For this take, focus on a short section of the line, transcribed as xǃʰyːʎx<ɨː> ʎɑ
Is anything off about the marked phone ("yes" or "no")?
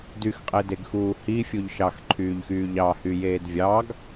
yes